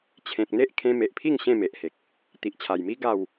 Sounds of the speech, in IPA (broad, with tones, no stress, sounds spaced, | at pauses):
t͡ɕʰ ẽ˨ k̚ n̪ e˦ ʔ kʰ ẽ˧ m e˨ ʔ pʰ i˥˧ ŋ ɕ ẽ˥˧ m e˨ ʔ h e˨ k̚ | t̪ i˨ ʔ t͡ɕʰ a˨˩ j m i˦ ɡ a˥˧ w